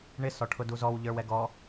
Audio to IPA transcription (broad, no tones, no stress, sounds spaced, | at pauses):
ɳ ɪ s ɔ ʈʰ ʊ d u z ɔ w ʎ ə˞ w ɛ ɡ ɔ